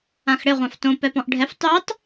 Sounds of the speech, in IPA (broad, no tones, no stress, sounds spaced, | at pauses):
ã x ɽ ɪ ʁʷ ã f t õ p ɛ p ɔ̃ ʔ ɖʱ ɛ f tˤ y tˤ